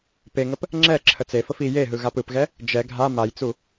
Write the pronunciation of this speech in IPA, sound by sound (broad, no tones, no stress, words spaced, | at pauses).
peŋəp | ŋ͡ǁɛ ǁʰət͡sefəf i jeɦɯ ɣapɯpɣɛ | d͡ʒɛ ɡʱa majt͡su